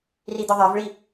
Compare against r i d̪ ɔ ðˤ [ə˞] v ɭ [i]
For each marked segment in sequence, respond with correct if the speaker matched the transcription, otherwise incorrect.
correct, correct

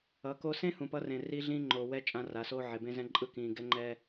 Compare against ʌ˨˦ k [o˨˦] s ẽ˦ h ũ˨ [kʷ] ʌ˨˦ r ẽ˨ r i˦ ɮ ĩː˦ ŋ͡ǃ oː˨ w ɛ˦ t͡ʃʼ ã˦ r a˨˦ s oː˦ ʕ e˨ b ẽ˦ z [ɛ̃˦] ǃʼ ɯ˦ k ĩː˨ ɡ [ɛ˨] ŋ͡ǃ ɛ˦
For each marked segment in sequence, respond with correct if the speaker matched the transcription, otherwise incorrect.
incorrect: o˦, incorrect: p, correct, incorrect: ɛ˦

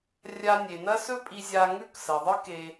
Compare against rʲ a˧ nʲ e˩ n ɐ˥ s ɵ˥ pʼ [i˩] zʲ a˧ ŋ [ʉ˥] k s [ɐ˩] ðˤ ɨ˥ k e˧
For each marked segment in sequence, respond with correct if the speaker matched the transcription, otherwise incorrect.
incorrect: i˧, correct, correct

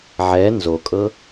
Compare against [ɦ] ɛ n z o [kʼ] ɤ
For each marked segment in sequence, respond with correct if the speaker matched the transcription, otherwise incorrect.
incorrect: ʕ, correct

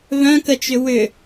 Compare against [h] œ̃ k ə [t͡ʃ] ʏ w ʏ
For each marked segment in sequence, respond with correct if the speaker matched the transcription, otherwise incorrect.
incorrect: β, correct

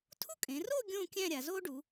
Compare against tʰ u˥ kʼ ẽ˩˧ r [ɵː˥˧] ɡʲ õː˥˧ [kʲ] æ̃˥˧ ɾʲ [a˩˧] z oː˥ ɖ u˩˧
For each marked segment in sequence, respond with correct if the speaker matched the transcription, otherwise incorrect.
incorrect: oː˥˧, correct, correct

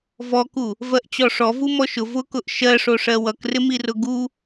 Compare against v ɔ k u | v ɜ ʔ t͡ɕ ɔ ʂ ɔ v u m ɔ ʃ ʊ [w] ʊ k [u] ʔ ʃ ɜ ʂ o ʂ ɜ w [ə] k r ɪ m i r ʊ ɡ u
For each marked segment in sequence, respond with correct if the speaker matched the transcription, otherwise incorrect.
incorrect: v, incorrect: ʊ, incorrect: ʌ

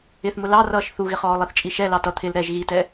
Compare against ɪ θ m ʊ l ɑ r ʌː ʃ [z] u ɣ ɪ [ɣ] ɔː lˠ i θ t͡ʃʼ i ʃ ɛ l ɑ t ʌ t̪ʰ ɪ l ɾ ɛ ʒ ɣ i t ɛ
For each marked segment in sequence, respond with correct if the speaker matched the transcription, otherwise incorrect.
incorrect: θ, incorrect: χ

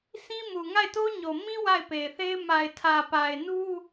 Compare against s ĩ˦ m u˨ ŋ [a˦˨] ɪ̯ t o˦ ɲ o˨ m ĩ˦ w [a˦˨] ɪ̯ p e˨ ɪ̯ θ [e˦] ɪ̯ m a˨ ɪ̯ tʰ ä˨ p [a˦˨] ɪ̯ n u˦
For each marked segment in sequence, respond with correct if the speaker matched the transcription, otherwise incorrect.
correct, correct, correct, incorrect: a˨

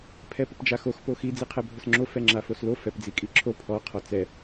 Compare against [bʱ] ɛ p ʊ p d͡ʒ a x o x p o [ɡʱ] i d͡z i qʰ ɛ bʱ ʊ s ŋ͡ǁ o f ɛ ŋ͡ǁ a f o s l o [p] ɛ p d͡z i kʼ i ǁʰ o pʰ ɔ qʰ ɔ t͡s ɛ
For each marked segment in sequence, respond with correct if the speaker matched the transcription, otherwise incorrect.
incorrect: pʰ, incorrect: x, incorrect: f

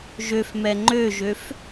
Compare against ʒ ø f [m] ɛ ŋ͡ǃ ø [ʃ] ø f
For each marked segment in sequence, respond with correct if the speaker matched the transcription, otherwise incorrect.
correct, incorrect: ʒ

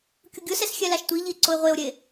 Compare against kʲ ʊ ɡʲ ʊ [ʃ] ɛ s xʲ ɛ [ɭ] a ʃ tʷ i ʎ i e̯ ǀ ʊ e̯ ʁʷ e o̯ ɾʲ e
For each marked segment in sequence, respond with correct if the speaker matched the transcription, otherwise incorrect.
incorrect: s, incorrect: l

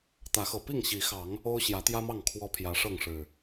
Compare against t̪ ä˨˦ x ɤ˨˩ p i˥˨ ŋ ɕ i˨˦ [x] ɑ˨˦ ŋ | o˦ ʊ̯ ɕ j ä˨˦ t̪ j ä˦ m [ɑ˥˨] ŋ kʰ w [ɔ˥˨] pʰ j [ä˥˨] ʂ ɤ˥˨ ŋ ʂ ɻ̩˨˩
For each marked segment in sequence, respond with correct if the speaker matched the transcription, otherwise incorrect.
correct, correct, incorrect: ɔ˦, incorrect: ä˨˦

